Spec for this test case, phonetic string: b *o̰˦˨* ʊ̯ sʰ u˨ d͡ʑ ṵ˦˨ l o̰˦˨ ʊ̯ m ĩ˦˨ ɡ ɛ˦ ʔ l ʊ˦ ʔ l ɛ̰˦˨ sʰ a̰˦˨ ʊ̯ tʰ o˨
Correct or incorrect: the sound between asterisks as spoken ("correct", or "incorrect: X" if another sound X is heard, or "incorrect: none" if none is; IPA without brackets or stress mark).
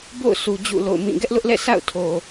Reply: correct